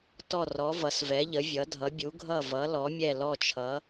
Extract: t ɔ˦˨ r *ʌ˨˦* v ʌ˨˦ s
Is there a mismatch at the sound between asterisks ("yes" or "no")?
yes